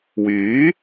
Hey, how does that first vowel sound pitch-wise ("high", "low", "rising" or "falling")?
rising